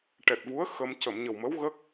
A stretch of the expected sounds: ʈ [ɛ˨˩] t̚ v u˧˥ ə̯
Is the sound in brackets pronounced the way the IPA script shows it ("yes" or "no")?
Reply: yes